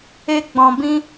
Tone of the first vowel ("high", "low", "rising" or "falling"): high